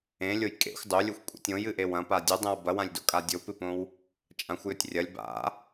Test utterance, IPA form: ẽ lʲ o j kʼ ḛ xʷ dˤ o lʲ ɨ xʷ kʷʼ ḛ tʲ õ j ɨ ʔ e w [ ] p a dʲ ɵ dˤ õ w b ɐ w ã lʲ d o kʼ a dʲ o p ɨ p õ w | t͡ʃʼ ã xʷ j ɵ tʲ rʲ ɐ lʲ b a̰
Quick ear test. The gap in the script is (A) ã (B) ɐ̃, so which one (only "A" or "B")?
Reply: B